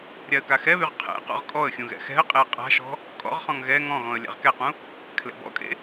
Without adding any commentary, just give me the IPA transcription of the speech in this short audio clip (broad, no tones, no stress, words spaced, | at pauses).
ɾʲaə̯kaxɛβyʁ qʰɛ̰ qɔ̰ʁkʼɔə̯xʲũ ɣɛ̰xɛ̤ə̯qʼeə̯ qʼa̤ʃɔ̤ | kʼɔ̰ʁχɔ̃ŋ ɣɛ ŋɔ̃ɣɔ̃ə̯ lʲa̰ʁkɛqũ | kʰlɛ̰bɔ̰kʼḛ